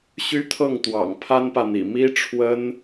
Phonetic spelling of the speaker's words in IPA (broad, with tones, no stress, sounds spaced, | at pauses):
ɕ y˥ t̪ʰ ɤ˥˩ ŋ t̪ w ɑ̰˨˩ ŋ pʰ a˥ n p ä˨ n̪ ḭ˨˩ m i˥ ʈ͡ʂʰ w ə˥ n